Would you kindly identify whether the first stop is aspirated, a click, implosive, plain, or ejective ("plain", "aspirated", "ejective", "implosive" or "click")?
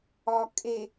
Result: ejective